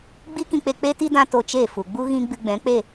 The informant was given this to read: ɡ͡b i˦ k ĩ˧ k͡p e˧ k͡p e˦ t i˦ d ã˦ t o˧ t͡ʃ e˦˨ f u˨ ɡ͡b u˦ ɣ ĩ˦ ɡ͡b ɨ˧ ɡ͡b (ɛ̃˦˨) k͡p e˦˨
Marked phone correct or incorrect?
incorrect